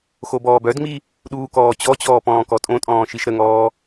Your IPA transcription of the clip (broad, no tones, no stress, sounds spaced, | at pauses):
x o b ɔː b œ d ŋ͡m i | ɗ uː k ɔː t͡ɕ ɔ t͡ɕ ɔː p ɔ̃ː k ɔ tʼ õ tʼ ɔ̃ː ʃ i ʃ ɾ ə ŋ ɔː